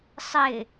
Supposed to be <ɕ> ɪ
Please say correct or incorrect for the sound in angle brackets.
incorrect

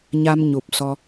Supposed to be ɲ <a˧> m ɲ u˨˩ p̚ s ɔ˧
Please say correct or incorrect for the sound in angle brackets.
correct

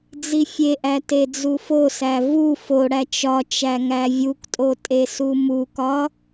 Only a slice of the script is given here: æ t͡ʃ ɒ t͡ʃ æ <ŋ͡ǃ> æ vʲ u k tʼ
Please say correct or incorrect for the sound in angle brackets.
incorrect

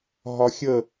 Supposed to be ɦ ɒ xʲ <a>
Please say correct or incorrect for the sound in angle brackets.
incorrect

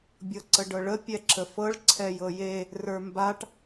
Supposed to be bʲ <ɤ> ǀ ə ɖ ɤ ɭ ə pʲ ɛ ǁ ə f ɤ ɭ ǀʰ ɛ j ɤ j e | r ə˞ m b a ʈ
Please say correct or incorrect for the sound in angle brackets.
correct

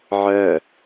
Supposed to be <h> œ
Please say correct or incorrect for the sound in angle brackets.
incorrect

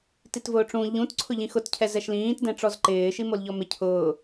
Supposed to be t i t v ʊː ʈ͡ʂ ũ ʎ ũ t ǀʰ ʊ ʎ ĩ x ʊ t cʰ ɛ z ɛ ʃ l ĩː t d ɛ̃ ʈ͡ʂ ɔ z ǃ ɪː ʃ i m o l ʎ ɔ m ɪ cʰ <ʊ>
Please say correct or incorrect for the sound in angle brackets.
incorrect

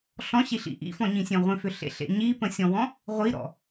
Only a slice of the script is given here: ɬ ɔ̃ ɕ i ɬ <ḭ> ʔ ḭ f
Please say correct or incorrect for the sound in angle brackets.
correct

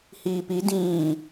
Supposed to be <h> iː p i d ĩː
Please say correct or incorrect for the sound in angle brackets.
correct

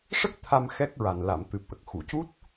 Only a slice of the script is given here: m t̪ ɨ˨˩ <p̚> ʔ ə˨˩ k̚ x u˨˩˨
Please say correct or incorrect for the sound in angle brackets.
correct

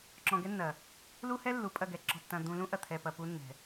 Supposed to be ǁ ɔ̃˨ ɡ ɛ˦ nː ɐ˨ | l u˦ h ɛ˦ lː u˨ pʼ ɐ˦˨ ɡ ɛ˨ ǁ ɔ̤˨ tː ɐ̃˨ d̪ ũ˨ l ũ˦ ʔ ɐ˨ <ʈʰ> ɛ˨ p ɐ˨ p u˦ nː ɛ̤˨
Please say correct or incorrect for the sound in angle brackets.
incorrect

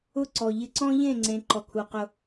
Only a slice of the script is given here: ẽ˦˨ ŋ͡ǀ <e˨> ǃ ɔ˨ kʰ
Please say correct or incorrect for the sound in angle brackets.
incorrect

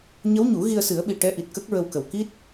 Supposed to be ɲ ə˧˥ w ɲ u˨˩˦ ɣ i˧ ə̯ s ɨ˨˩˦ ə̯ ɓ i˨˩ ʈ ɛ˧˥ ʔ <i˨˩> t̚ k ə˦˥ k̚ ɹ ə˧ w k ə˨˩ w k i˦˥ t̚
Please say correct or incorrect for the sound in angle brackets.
correct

